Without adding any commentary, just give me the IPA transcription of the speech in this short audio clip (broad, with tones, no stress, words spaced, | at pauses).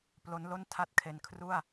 plo˦˥nlo˥˩n tʰa˥˩t̚kʰe˧n kʰru˥˩a̯